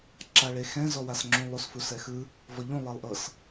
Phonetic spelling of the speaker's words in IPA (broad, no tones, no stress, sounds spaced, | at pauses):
ǁ a ɭ e x ɛ̃ z ɔ w a s ŋ͡ǁ ũ lˠ u s f u s ɛ x ɯ | v ɔ ʎ ũ lˠ e lˠ ʔ ɤ s